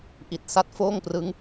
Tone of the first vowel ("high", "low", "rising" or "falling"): low